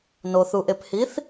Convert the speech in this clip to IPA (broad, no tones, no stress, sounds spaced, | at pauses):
n o θ u ʔ e p h i θ